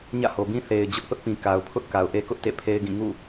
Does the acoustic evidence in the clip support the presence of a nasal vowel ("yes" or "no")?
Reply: yes